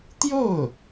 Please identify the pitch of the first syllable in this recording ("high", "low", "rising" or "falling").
falling